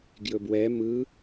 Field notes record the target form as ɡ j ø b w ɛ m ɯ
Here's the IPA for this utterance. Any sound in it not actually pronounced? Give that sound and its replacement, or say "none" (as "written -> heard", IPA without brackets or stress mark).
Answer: ø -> ɵ